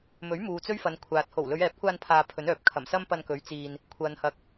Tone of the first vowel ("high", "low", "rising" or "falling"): rising